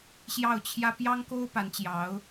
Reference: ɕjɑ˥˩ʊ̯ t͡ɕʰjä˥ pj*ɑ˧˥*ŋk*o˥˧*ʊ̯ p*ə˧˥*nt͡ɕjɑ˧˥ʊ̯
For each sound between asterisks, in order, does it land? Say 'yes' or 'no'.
no, no, no

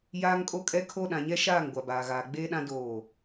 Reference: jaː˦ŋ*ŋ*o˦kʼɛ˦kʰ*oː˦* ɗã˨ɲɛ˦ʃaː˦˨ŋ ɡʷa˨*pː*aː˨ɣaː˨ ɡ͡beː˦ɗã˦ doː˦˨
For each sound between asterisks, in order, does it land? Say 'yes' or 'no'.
no, no, no

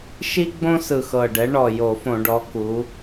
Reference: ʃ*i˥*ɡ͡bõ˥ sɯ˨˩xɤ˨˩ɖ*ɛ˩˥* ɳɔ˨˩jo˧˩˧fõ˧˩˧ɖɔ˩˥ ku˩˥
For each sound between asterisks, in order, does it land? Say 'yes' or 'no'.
yes, yes

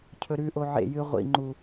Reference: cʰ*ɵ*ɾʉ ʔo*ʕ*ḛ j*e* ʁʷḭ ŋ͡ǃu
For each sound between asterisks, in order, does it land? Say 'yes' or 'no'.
yes, yes, no

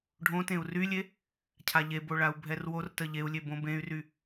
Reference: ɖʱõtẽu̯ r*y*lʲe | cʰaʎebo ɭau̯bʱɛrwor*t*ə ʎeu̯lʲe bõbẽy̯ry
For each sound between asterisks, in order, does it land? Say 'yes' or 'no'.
yes, yes

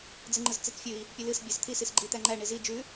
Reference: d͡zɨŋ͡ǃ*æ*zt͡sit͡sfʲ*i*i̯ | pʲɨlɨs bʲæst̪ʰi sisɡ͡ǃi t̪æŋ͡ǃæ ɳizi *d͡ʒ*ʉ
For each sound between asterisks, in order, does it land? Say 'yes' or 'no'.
no, no, yes

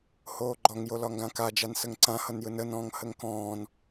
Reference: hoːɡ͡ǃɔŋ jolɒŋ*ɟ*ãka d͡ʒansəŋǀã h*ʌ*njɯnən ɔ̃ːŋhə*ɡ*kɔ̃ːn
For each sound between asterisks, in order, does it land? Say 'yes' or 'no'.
no, yes, no

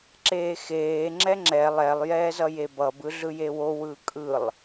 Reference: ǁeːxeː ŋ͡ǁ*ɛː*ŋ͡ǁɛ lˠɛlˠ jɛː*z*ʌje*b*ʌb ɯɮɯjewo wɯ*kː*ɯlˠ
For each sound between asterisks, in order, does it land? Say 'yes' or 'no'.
no, yes, yes, no

